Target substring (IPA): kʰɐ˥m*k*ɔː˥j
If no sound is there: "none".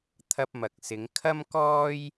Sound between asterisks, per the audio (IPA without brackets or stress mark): k